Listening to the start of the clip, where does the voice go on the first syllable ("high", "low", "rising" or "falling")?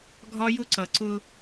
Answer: high